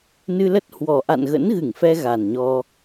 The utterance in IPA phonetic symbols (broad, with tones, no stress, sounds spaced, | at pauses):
n ɨ˧ l ə˦˥ t̚ h w ɔ˨˩ ʔ a̰˧˨ n ɣ ə̰˧˥ n ɣ ɨ˧˩ ŋ f ɛ˧ ɣ a˨˩ n ɲ ɔ˧